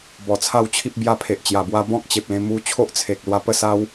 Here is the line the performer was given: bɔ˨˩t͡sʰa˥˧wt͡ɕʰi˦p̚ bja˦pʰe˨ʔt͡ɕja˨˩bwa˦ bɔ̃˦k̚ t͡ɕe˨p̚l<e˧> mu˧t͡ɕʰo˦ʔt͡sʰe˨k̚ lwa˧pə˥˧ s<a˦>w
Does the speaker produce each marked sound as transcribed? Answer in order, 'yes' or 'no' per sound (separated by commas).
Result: no, yes